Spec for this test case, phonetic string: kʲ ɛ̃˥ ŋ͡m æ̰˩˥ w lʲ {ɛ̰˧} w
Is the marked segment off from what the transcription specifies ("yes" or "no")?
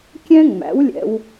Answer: no